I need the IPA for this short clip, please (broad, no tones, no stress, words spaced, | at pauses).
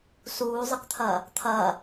suːzˤɨkt̪ʰɐː | t̪ʰɐː